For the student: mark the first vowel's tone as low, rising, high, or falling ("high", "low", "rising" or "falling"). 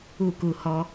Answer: falling